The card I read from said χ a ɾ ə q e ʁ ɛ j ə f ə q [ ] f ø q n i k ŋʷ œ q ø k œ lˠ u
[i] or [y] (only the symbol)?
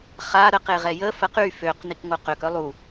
y